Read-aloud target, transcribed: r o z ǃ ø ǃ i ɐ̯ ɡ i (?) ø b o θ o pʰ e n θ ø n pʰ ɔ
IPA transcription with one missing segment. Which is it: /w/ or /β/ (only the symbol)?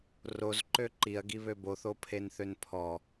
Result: β